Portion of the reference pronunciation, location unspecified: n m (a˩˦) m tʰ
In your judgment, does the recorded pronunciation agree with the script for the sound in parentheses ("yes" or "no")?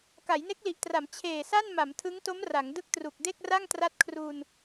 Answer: yes